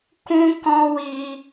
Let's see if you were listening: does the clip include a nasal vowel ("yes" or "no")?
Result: yes